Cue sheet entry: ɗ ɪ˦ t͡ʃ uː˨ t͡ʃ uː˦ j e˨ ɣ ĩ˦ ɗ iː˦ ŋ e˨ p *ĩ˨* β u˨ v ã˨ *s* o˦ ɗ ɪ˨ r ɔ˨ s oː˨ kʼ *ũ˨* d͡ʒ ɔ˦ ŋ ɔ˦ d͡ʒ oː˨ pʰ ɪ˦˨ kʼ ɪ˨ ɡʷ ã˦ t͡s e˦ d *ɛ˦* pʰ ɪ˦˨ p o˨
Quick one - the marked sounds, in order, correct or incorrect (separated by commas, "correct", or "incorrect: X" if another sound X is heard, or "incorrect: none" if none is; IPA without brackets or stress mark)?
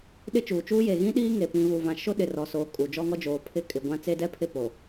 correct, incorrect: ʃ, incorrect: u˨, correct